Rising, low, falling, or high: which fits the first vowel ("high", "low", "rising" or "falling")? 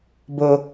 low